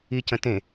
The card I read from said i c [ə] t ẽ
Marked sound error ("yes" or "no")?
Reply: yes